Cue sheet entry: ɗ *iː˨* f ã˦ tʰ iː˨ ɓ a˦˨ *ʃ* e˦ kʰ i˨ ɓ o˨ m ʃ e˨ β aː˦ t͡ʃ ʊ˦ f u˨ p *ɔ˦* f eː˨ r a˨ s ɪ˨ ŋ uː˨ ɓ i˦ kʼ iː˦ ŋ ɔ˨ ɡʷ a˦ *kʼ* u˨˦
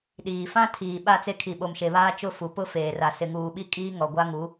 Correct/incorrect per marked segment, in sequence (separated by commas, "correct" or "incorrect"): correct, incorrect, incorrect, incorrect